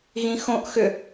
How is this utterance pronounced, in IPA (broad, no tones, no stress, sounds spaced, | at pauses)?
ɣ ĩ x õ ʔ x ʏ